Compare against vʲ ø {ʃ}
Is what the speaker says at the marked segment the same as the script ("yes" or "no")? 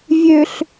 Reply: no